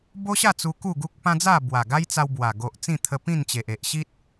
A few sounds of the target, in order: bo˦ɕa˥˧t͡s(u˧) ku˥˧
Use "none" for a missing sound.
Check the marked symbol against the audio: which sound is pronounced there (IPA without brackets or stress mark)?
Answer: u˧